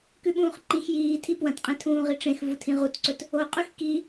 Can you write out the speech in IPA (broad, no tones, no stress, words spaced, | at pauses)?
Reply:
kʉɓũːχǃĩx jiː tʰipwɐ̃tqʼẽ tʰũːʁiʈ͡ʂẽx vutʰĩʁutǀɵt | oqʼʉx ki